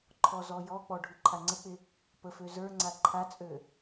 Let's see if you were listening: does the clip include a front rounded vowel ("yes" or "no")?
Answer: yes